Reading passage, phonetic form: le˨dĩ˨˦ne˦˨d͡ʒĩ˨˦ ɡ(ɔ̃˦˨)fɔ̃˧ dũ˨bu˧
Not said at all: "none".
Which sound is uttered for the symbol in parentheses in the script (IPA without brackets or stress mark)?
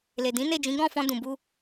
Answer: ɔ̃˦˨